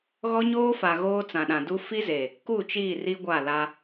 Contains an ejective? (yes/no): no